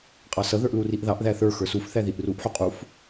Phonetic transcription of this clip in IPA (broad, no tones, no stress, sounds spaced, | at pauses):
qʼ ɑ s ʌ ð ə˞ ʔ l u r i ʔ ð ɑ ʔ ð æ θ ə˞ x ə˞ s u f θ æ ð i ʔ r u ʔ ħ u qʼ u f